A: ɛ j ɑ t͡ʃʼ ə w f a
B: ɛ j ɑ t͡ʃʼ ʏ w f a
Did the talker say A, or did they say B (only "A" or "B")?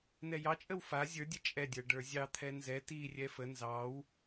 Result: A